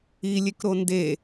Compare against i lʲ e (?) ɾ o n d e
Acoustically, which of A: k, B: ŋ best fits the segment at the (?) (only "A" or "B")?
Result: A